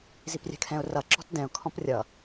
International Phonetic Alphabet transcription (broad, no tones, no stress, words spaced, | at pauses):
ziprʲɛ̤kʰɛ̃ʊ̯rʌ ǁɔ̤tdɛ̃ʊ̯ kʰɔ̃prʲʌ